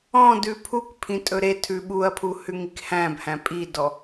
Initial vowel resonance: nasal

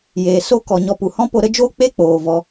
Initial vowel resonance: oral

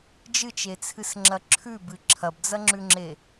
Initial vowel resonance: oral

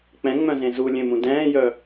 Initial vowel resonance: nasal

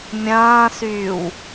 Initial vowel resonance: nasal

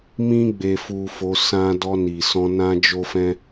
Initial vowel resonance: nasal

